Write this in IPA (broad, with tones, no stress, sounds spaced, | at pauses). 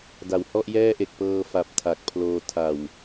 d a˩˦ w h ɔ˥˩ ʔ j ɛː˥˩ ʔ e˨˩ k̚ p ɤː˧ f a˨˩ p̚ tʰ a˨˩ k̚ pʰ l oː˧ tʰ a˨˩ w